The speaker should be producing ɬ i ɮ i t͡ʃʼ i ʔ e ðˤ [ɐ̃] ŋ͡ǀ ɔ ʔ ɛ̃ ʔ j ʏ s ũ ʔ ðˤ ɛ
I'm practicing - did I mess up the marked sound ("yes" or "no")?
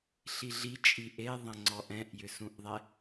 no